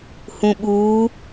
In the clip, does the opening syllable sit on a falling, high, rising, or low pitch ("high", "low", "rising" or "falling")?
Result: low